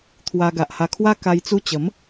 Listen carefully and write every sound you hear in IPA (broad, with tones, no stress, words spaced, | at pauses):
t̪ʰwa˧ ɡa˨ʔha˧kʰwa˦ ka˧jt͡su˧t͡ɕə˨˦m